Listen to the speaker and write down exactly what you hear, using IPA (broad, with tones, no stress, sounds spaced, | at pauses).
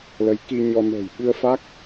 l ə˨˦ j k i˧ ɲ ɔ˧ n ə̤ː˨˩ j ɓ ɨ˧ ə̯ f a˦˥ k̚